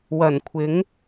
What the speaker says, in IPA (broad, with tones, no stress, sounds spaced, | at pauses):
w ɐ˨˩ n kʷʰ ɪ˨˥ ŋ